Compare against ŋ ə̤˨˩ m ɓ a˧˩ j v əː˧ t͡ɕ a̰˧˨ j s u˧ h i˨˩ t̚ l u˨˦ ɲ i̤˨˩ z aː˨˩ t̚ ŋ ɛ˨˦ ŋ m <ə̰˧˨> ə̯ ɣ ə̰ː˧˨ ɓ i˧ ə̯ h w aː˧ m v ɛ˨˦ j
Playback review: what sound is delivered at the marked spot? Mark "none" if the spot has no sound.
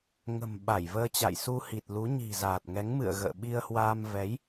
ɨ̰˧˨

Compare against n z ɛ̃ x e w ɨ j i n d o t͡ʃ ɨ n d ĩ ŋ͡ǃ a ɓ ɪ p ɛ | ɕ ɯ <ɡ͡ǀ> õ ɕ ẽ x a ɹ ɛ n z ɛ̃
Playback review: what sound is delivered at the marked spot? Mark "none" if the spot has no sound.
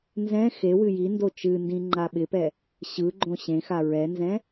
ɡ͡ǃ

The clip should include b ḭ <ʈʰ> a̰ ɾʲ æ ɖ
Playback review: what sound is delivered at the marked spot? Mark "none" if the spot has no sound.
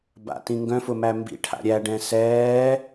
ʈʰ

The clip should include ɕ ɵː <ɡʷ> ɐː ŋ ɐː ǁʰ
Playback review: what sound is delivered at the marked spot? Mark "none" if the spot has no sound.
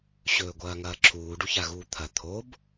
ɡʷ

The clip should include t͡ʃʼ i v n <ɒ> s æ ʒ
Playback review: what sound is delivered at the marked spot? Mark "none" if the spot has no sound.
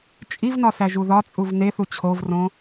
ɒ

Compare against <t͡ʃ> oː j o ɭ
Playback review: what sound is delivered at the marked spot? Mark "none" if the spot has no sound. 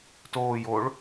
t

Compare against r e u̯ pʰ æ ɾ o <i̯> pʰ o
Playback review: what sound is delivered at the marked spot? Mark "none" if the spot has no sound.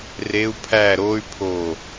y̯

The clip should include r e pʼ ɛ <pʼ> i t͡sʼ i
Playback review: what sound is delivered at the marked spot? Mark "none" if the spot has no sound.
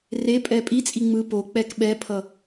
pʼ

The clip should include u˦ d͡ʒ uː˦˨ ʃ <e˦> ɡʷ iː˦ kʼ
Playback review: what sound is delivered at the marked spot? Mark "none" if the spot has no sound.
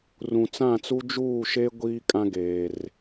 e˦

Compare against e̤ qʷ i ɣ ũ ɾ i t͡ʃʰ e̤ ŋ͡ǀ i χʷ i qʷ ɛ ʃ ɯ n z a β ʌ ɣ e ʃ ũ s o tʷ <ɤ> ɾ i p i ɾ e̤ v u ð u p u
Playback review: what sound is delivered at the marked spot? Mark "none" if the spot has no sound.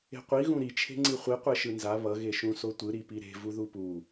ɯ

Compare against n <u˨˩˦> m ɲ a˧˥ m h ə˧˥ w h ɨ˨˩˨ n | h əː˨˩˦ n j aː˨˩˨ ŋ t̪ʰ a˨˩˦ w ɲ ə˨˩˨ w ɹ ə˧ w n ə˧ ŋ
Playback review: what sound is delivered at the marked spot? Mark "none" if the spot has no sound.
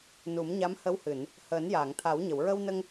u˨˩˦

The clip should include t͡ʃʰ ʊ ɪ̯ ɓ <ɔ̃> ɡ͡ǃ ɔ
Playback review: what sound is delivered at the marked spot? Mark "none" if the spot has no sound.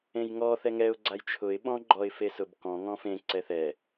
ɔ̃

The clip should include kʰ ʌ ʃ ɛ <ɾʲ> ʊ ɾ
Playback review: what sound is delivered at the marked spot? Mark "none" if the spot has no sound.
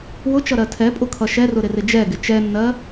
r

